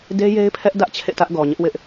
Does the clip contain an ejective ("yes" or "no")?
no